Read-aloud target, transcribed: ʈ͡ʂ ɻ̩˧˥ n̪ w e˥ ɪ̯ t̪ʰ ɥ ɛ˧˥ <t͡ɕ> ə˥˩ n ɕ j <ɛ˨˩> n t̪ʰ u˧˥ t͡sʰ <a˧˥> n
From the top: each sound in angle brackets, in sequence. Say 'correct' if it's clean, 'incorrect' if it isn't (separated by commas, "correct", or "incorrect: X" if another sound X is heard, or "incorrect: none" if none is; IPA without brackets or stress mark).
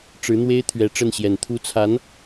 incorrect: ʈ͡ʂ, correct, correct